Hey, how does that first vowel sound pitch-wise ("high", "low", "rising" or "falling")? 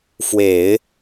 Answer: low